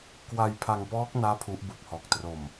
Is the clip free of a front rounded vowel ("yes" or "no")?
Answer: yes